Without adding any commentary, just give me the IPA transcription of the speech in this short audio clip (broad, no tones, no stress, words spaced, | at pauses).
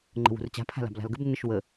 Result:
ŋ͡ǃə̤wṳrt͡ɕa̤ pʰa̤la̤bla̤lɡəb nːəʃwə